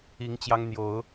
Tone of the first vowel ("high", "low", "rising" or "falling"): rising